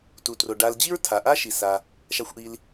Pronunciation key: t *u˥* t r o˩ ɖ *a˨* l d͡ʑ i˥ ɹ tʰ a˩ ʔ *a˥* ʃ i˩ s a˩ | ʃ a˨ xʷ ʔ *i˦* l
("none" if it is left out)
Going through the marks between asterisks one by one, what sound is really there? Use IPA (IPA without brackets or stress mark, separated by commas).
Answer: u˩, a˨, a˥, i˨